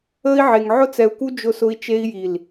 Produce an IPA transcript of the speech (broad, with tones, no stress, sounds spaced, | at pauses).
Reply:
əː˧ i̯ ʕ e˨ ŋ ʕ ʊ˧ t͡s ɛ˨ u̯ k u˧ d͡ʒ ʊ˧ s ʊ˧ i̯ t͡ʃ e˧ i̯ j i˨ l